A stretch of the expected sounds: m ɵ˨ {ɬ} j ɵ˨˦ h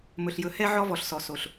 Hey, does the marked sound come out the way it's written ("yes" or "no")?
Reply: yes